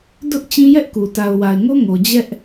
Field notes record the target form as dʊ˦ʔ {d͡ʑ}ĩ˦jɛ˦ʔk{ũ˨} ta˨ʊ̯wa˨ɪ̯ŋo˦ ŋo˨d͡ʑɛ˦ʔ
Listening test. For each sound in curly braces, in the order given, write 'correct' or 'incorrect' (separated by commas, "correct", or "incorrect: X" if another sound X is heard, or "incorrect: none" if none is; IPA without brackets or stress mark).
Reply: incorrect: t͡ɕ, incorrect: u˨